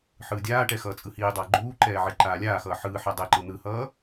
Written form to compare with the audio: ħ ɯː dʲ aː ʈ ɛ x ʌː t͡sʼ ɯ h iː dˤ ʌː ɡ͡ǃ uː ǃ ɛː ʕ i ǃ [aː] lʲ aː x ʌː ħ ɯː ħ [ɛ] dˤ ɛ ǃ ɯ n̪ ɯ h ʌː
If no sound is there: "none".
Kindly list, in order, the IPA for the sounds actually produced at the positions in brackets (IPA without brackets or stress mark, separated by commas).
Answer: aː, ɛ